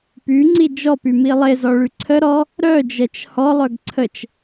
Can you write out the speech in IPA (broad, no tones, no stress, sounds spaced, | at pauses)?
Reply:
p y ŋ͡ǀ i d͡ʒ ɔ p y m i lˠ e z ɔ ɭ y ǀʰ ə ɾ ɔ | ɾ œ d͡ʒ ɛ t͡ʃ h ɔ lˠ œ ɡ ǀʰ ə t͡ʃ